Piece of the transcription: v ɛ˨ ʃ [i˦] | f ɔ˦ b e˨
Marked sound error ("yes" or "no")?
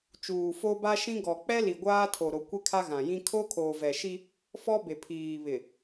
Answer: no